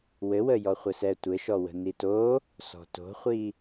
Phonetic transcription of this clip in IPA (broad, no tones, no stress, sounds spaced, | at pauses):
w ɘ w ə j ɔ χʷ ɘ s ɛ tʷ ɘ ʃ ɔ w ə̤ n i t o | s ɔ̤ t o̤ χʷ i